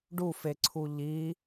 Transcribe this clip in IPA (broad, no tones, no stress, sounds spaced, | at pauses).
ɖ u f e ǀʰ u ʎ i